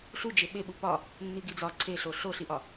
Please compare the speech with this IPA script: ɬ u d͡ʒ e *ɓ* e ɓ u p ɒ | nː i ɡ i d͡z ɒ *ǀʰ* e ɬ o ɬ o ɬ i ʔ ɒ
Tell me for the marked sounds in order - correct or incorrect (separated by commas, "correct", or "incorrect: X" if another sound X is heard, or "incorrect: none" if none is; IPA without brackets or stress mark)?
correct, correct